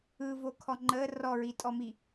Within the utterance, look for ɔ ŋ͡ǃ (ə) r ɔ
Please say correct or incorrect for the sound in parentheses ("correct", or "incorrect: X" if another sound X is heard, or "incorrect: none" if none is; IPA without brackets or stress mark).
correct